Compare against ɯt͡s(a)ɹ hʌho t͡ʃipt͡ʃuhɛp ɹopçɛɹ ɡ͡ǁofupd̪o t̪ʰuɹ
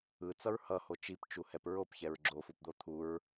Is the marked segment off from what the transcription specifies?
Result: yes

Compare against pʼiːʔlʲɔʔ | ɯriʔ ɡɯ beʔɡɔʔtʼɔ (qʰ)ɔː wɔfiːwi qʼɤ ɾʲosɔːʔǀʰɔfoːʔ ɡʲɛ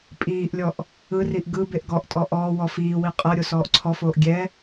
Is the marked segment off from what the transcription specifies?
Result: yes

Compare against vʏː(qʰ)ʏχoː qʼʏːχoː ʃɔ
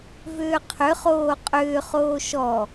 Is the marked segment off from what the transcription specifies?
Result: no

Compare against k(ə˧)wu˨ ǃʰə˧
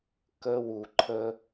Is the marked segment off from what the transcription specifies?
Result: no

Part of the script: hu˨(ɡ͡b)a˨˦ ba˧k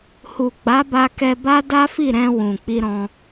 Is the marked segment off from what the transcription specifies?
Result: no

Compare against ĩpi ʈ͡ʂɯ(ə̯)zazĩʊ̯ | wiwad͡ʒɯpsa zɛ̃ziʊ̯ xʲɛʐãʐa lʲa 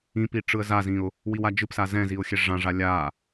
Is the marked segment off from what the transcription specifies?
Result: no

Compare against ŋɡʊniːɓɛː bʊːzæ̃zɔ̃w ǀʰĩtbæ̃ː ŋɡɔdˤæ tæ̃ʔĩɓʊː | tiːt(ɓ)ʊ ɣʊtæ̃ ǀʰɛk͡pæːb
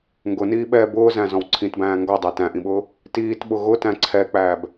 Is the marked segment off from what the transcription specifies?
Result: no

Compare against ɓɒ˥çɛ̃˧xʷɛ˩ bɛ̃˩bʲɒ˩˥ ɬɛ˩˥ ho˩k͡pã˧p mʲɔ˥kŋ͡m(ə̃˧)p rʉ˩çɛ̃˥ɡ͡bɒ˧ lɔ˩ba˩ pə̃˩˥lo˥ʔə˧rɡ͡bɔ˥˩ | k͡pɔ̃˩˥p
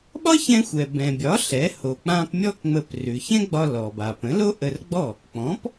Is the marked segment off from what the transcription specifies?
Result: yes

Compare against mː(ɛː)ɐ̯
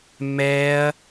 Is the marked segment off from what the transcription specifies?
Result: no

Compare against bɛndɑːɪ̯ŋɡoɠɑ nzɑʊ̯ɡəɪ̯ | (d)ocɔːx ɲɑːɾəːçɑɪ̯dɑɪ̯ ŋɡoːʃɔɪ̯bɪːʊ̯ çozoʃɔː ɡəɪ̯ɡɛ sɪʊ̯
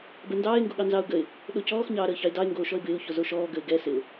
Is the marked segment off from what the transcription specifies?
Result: yes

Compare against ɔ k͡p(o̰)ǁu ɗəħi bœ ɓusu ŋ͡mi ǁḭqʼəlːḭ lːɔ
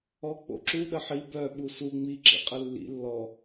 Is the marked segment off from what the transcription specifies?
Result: no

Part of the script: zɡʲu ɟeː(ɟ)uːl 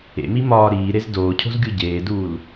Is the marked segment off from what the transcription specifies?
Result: yes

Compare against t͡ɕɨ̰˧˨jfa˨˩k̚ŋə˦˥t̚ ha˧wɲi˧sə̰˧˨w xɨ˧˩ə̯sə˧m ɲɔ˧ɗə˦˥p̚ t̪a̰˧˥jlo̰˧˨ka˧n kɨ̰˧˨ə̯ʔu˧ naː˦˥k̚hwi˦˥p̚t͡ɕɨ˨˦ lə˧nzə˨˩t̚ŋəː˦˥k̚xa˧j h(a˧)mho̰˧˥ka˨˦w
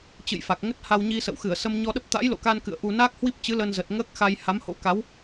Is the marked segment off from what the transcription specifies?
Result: yes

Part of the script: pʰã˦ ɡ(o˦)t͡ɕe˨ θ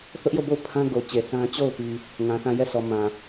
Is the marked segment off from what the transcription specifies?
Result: yes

